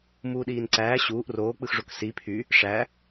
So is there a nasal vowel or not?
no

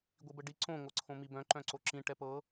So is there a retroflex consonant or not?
yes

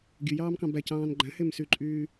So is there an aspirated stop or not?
no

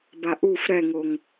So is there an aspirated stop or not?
no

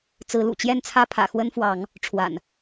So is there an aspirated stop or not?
yes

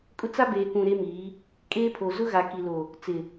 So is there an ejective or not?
yes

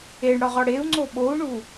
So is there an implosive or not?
yes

